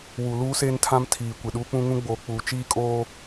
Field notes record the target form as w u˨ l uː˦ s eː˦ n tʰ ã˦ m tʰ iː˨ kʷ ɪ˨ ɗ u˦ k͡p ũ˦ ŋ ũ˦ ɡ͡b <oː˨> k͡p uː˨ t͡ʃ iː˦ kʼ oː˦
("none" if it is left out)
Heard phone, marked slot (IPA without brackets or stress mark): oː˨